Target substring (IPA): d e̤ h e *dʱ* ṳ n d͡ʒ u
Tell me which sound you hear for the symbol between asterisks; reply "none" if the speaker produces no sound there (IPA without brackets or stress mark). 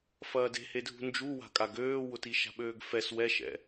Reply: dʱ